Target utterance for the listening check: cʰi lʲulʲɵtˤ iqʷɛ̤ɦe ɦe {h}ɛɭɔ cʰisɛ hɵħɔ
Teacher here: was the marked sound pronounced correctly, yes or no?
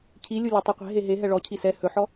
no